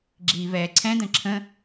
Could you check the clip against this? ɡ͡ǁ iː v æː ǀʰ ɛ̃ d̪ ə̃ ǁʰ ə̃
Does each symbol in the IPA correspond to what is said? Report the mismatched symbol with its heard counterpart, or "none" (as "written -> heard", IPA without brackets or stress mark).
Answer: æː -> ɛː